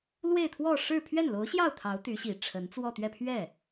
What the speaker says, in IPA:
l w e˥˧ ɪ̯ t̪ʰ w ɔ˥˧ ʂ ɻ̩˥˧ pʰ ɥ ɛ˥˩ n l o˧˥ ʊ̯ ɕ j ɑ˥˩ ʊ̯ t̪ʰ ɑ˧˥ ʊ̯ t̪ y˧˥ ɕ i˨˩ ʈ͡ʂʰ ə˧˥ n t͡s w ɔ˥˧ t̪ ɥ ɛ˥˧ pʰ ɥ ɛ˥˩

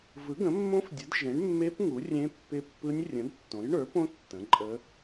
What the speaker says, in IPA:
v ɯ˩˥ ɡ ə̃˩˥ mː õ˦˥ f dʲ ə˩˥ d ʒ ẽ˩˥ ɳ mː e˦˥ p ŋ u˩˥ rʲ ẽ˦˥ pː ɪ˦˥ pː ɯ˦˥ nʲ rʲ ə̃˩˥ d tː õ˩˥ j ɳ ə˞˩˥ p õ˦˥ tː ə̃˩˥ ǃʼ ə˦˥

